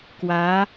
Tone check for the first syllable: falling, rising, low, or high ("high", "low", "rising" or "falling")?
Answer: rising